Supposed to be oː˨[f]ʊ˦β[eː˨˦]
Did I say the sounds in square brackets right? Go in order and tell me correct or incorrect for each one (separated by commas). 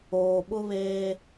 incorrect, incorrect